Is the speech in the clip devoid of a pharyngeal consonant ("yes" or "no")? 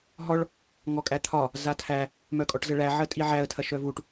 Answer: no